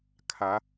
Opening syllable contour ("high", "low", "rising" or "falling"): rising